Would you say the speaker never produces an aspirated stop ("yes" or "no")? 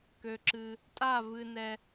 yes